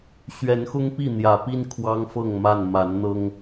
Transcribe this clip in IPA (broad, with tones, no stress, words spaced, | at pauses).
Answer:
ɕɥɛ˨˦nxʊ˦ŋpi˥˨ n̪jä˨˩ pi˦n kʰwɑ˦ŋfɤ˥˨ŋ ma˥˨n ma˨˦nn̪ɤ˦ŋ